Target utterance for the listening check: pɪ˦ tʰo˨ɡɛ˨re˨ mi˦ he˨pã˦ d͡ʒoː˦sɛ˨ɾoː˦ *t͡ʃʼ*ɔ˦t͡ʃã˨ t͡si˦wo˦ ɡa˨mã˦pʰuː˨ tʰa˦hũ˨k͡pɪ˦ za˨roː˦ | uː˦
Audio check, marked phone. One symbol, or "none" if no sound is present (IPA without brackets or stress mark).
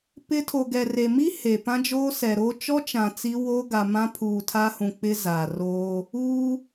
t͡ʃ